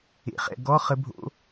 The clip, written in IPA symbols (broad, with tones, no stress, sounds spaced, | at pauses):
ḛ˩˥ χ ɛ̰˦˨ ɡ ɔ˧˥˧ χ ə˧˥ bʱ o̰˧˥